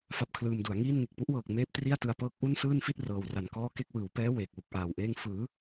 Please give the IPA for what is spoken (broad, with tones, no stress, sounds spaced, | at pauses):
f a˦˥ p̚ kʰ l ɯː˧ m d u˩˦ a̯ ŋ iː˥˩ n ŋ e˨˩ k̚ p u˦˥ ʔ w ɤː˨˩ k̚ m eː˦˥ p̚ t r i˥˩ a̯ t ɯ˧ a̯ p ɤː˦˥ k̚ ʔ u˥˩ n s ɯː˥˩ n f i˥˩ t̚ r ɤː˨˩ w r a˨˩ n k ɔː˥˩ k e˥˩ k̚ w ɯː˩˦ w p ɛː˦˥ w eː˨˩ k̚ w u˨˩ k̚ ʔ aː˨˩ w ʔ eː˥˩ ŋ f ɯː˩˦